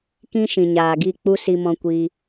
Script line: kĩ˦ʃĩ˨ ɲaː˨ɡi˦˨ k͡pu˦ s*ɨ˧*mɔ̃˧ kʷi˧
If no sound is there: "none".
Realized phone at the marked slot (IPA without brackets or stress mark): i˧